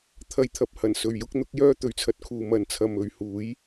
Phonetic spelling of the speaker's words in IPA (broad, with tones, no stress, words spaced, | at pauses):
t̪ʰɐ˧jt̪ʰɐ˨p̚hɐ˨˩n sɵ˨ɥjʊ˥k̚n̪ʊ˨˥k̚ jœː˥t̪ɵ˨ɥt͡sʰɐ˧t̚kʰuː˨ mɐ˨nt͡sʰɐ˨mɵ˨ɥ huː˨˥j